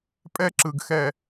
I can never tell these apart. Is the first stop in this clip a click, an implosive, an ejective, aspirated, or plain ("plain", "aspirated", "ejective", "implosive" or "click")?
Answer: ejective